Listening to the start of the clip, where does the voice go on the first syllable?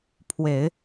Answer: low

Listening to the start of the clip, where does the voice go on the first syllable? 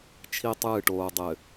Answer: high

